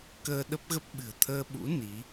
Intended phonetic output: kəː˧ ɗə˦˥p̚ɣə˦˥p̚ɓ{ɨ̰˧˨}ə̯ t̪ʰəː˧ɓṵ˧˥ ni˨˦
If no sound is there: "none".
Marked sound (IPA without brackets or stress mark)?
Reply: ɨ̤˨˩